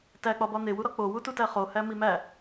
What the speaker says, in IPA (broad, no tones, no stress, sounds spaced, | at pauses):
t æ k͡p ɒ b ɒ n̪ e w u ɾ ɒ k͡p o w u t u t æ χ o h æ m i m æ